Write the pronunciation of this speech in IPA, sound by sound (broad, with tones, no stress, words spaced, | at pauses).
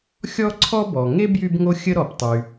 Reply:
xʲɔ˥ǀʰɔ˥ bɔ˩ ŋe˥ bjy˥bŋo˥ xʲə˥ɾɔ˩ptˤy˩